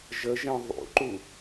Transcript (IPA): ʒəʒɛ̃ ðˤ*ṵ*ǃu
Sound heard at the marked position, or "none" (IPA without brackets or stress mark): ṵ